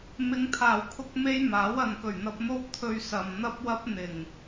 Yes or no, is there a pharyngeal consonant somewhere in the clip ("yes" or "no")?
no